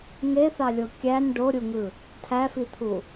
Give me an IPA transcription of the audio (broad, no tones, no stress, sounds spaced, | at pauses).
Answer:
ŋ e θ ɑ lʲ o kʲ æ n ɖ o ɾʲ u ŋ ɯ | tʰ æ f i t̪ʰ u